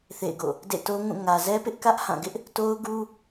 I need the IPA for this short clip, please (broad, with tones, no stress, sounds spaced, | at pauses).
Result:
θ ḛ˦˨ ɪ̯ ɡ o̰˦˨ | d ḛ˦˨ t o˦ ŋ ũ˦˨ ŋ ä˨ z ɛ˦ p ɪ˦ ʔ k ä˦ ʔ h ã˦˨ ɡ ɪ˦ ʔ | t o˦ ʊ̯ ɡ u˦